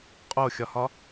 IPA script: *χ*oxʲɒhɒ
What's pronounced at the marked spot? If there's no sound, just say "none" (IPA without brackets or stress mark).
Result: qʼ